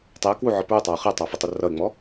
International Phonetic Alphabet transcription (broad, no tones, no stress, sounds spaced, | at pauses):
tˤ ɪ ə̯ k w u ʕ ɔ p ɹ ʊ tˤ ɑ ʊ̯ χ ɛ tˤ ɑ f ʊ tˤ ʊ r ʌ ɪ̯ ŋ͡m ɔ